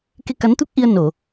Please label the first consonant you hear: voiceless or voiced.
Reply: voiceless